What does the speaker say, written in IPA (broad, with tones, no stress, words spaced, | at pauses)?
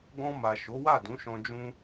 ɡɔ̃˧ma˨ ʃo˨˦wa˦˨dũ˨˦ʃɔ̃˧ d͡ʒũ˦